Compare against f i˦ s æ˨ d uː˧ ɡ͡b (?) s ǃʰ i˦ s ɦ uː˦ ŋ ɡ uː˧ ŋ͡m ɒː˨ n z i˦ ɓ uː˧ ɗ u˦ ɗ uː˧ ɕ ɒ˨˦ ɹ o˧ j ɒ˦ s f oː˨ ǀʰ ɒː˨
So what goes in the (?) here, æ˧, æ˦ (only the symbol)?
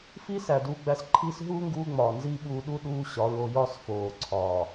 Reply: æ˧